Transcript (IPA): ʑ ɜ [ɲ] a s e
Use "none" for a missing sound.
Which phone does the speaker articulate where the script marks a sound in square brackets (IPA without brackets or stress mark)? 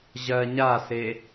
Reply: ɲ